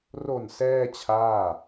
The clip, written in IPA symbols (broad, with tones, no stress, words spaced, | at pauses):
ro˨˩n sɛː˥˩t͡ɕʰaː˥˩